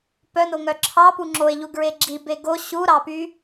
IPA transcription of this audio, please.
pœnoŋœ ǁʰɑpu ŋ͡ǁoe̯ʎuɡɹe ɡ͡ǁibe ɡo ɕuɾɑpy

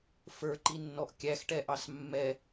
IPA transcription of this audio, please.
fə˞ǃinːɔʔ kʲæxʈɛʔɑs mːɛ

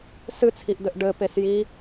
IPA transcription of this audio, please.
sɨt͡sʰiʔd̪ɘʔ ɖɘpes ji

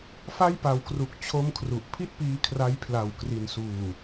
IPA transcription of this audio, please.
fa˥˩jpa˨˩wkru˨˩k̚ t͡ɕʰo˥˩mkʰru˨˩ʔ pʰi˥˩t̚piː˧ kʰra˦˥j pʰla˨˩wkri˩˦nsuː˨˩

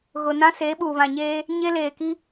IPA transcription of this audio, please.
ɣʊ˨nã˦se˨˦ ɓuː˨βã˨ɲeː˦ | ɲe˦leː˨ ki˦

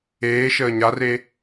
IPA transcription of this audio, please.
eːʃəː ɲare

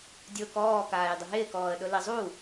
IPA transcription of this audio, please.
dʲʊːkɔː kaːjdˤɪɦɪːk ɔːə̯ɗʊlizˤu

